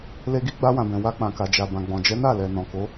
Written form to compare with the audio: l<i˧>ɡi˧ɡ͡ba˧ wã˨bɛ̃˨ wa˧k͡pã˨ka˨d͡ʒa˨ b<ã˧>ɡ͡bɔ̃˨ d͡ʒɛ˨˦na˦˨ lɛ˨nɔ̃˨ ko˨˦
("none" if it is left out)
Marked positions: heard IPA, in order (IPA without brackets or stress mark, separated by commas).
e˧, ã˨